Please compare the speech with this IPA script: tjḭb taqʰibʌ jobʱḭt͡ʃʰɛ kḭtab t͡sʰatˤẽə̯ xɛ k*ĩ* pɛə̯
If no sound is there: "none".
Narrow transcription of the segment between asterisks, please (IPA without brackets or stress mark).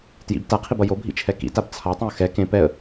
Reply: ẽ